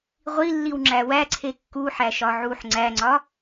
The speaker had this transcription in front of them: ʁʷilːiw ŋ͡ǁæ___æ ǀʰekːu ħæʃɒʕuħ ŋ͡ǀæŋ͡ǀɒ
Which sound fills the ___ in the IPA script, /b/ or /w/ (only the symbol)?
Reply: w